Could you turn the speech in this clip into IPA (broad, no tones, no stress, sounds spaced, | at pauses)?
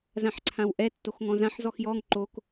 z ã ħ ǀʰ ã w ʔ ɛ tː o x ŋ ɔ̃ z ã ħ z ɔ x j ɔ ŋ ǃ o k